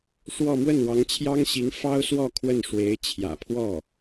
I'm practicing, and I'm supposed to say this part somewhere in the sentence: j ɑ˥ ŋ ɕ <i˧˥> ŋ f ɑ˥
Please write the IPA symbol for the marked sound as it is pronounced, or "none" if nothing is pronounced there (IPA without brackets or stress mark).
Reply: i˧˥